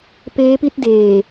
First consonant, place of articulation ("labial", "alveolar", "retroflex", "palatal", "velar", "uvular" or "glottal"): labial